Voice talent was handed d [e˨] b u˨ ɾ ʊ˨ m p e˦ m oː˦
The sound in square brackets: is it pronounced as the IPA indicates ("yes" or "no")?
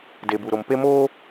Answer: yes